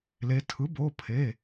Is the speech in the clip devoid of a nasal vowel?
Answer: yes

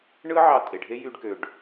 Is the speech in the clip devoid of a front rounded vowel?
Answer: no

